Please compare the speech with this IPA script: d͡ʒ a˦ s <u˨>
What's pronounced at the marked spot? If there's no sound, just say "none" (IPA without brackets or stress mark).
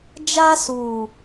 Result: uː˨